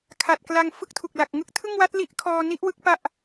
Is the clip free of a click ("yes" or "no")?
yes